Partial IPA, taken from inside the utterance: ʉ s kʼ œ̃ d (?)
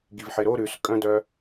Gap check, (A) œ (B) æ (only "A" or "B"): A